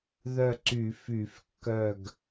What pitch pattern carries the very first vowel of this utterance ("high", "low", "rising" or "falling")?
falling